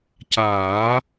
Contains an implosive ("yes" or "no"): no